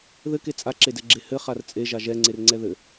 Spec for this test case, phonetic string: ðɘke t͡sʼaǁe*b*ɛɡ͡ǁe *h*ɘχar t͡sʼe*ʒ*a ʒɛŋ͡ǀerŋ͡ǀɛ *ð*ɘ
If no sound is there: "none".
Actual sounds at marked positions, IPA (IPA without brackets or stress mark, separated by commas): d, h, ʒ, ð